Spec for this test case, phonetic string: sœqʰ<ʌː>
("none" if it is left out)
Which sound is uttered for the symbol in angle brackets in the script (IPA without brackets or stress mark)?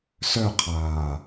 aː